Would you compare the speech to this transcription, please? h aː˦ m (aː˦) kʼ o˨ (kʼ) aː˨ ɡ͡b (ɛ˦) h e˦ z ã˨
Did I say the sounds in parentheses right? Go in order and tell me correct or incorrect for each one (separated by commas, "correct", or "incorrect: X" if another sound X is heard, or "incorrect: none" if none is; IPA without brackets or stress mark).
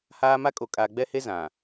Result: incorrect: a˦, correct, correct